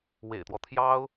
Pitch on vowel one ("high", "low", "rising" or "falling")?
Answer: low